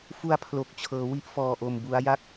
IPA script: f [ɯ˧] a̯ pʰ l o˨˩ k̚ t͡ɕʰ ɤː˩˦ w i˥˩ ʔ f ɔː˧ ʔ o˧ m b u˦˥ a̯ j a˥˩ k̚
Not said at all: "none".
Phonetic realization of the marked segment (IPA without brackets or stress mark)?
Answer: u˧